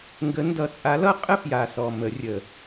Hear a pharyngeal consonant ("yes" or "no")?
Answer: no